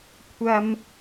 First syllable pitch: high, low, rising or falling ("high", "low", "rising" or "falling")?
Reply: high